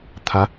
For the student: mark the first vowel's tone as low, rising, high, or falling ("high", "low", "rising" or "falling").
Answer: rising